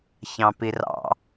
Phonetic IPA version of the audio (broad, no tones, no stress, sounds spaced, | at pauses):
ç ɑ̃ p i r ɑ̰